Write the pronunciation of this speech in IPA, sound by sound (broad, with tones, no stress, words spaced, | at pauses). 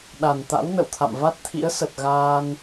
ɗa˨˩nt̪a̰˧˥wnə̰˧˨wt̪ʰa̰˧˨m va˦˥t̚t̪ʰḭ˧˥ə̯sə˨˩t̚ ɣaː˧n